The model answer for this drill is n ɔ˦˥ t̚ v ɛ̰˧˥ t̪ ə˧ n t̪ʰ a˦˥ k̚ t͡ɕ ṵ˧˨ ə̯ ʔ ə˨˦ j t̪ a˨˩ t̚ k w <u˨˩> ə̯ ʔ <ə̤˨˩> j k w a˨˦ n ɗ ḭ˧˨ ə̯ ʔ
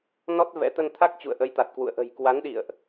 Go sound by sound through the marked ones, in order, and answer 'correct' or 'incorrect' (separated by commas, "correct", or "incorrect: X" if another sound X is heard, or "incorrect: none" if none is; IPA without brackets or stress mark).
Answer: incorrect: ṵ˧˨, correct